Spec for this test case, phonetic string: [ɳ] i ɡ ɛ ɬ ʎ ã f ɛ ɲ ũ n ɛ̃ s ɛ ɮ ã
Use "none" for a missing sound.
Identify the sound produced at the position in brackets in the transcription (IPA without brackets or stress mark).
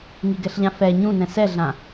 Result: ŋ